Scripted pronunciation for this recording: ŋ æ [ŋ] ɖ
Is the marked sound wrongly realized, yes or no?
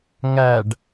yes